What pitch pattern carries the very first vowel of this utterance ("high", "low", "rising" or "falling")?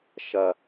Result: low